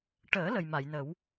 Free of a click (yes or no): yes